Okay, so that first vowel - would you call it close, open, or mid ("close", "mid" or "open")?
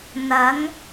open